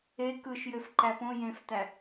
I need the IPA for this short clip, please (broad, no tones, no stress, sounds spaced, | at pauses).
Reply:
e k ɯ ʃ j ø f ǃ æ p õ j ẽ f t̪ æ